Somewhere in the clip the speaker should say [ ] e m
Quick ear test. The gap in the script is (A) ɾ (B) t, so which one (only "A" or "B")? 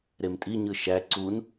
A